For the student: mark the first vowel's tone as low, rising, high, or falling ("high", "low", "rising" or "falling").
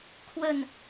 falling